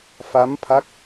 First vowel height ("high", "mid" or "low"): low